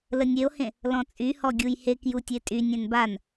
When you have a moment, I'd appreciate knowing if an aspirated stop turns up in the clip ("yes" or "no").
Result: no